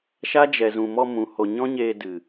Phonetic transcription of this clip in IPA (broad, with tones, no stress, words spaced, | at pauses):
ʃa˦d͡ʒɛ˨zũ˨mɔ˧ mũ˨ho˨ɲɔ̃˦ɲeː˧ dɨ˨